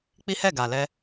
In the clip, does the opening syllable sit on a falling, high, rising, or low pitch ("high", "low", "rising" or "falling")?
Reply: high